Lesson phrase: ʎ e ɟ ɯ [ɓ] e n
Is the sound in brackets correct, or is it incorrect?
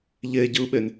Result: correct